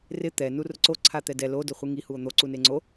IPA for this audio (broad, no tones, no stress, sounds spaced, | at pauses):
r ɪ t̪ ɛ n u r ʊ ǀ o ǀʰ a t̪ ɛ d ɛ l o d ʊ χʷ i ŋ i h u o̯ n̪ o ǀ u n e ŋ͡ǀ o